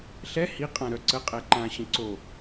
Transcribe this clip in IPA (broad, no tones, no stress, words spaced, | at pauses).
ɬɛ hi qʼãɾœ ǀəqʼɛ ǃãɕə̃ ǀo